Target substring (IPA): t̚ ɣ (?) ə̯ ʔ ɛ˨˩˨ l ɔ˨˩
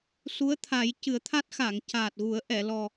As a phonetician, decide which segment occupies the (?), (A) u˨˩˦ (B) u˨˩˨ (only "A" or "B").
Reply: A